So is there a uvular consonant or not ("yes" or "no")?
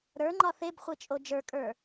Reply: yes